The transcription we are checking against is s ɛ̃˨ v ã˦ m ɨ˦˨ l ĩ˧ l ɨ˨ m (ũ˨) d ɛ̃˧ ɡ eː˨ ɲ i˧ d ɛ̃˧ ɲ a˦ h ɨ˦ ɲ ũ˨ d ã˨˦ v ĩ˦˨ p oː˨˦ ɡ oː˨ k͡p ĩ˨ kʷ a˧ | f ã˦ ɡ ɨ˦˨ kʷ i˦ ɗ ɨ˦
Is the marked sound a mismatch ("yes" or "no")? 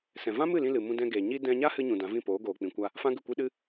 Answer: yes